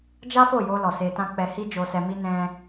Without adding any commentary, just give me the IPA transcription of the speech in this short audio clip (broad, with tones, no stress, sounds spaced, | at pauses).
d͡ʒ a˦ f o˦˨ j o˧ l ɔ˨ s e˧ t ã˦ k͡p ɛ˧ h i˦ d͡ʒ o˧ s ɛ˧ m i˦ n ɛ̃˧